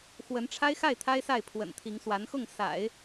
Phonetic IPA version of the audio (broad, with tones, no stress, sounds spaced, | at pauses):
x w ə˧˥ n ʈ͡ʂʰ a˥ ɪ̯ x a˥˩ ɪ̯ t̪ʰ a˥ ɪ̯ s a˥˩ ɪ̯ pʰ w ə̰˨˩ n t̪ʰ i˧˥ ŋ s w a˧˥ n x ʊ˥˩ ŋ s a̰˨˩˦ ɪ̯